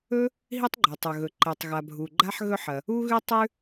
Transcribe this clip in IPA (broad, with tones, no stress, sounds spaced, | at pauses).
ɵ˥ | ɦ i˥ tˤ ɡ͡ǃ o˩ tˤ ɵ˩ ɣ ɵ˩ ǃ e˩ tˤ ɣ a˩ bʱ u˩ ɡ͡ǃ a˥ ħ ɣ ɵ˥ ħ ɐ˩ | u˥ ɣ ʉ˥ tˤ ʉ˥